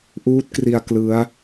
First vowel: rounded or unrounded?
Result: rounded